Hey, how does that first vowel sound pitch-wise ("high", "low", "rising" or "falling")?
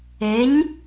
rising